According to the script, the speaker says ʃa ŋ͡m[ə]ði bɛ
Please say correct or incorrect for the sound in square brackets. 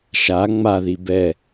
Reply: incorrect